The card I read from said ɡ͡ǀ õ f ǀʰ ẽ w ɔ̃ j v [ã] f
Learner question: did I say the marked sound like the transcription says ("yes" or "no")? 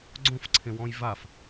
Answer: no